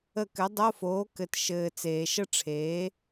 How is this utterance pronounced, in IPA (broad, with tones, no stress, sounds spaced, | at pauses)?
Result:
ə˦˨ k ɘ˨˥ dˤ o˧˥˧ f oː˨˥ k ɘ˨ t ʃ ɘː˨ t͡s eː˨ ʃ ə˥ ʈ͡ʂʰ eː˨˥